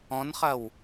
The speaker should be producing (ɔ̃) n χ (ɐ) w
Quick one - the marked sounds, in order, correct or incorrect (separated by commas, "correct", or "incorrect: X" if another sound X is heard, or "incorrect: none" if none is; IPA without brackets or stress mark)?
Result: correct, correct